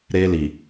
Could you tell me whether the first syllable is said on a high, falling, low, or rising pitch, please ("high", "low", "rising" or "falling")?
high